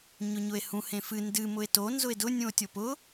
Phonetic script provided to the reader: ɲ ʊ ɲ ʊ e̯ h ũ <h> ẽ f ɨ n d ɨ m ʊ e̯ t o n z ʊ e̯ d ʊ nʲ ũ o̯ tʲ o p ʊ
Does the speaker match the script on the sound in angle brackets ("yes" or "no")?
yes